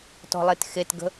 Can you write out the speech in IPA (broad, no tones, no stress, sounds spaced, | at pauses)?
t ɔ̤ lˠ e t x e t ɡ ə̤